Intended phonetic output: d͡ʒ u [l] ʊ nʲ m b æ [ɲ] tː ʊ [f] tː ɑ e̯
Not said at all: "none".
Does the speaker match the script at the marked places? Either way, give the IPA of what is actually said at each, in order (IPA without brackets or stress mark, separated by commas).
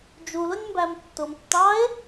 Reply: l, m, m